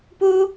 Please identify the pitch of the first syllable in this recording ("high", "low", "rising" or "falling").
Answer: high